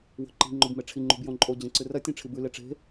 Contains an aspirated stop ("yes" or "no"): yes